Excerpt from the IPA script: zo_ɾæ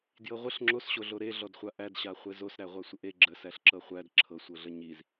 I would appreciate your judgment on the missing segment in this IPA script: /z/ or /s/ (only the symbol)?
s